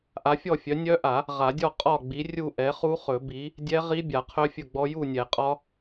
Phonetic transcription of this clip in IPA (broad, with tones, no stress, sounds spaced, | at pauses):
ʔ a˨˥ fʲ ɔ˥˨ fʲ œ˨˥ nʲ œ˦˥ ʔ a˨˩˦ | ʁ a˨˩˦ dʲ ɔ˥˨ qʼ ɒ˥˨ ɡ͡b i˨˥ rʲ u˥˨ ʔ ɛ˨˥ χ u˦˥ χ ɵ˨˩˦ b i˨˥ | dʲ ɛ˦˥ ʁ i˦˥ bʲ a˨˩˦ qʰ œ˦˥ fʲ ɵ˥˨ ɡ͡b ɔ˦˥ j u˥˨ nʲ ɛ˨˩˦ qʼ ɒ˦˥